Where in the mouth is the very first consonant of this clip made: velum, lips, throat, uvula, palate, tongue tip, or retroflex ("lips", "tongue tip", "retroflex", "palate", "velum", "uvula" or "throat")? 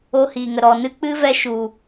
throat